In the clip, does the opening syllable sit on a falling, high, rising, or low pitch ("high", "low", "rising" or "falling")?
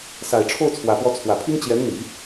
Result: low